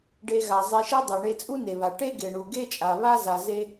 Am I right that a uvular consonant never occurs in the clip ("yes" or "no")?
yes